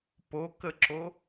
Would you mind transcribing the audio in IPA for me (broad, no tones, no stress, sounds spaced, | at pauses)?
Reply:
p o k ə ǁ o